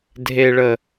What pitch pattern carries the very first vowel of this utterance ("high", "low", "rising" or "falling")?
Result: low